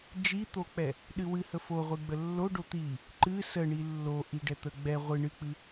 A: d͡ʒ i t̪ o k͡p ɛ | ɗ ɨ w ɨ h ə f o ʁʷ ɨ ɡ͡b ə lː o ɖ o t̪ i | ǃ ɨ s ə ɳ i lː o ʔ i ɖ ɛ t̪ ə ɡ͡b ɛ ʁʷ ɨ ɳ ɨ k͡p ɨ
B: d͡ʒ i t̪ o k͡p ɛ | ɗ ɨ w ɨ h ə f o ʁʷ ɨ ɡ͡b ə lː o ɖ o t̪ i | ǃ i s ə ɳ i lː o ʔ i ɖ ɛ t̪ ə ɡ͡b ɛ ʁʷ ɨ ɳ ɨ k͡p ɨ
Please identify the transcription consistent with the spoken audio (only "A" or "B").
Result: A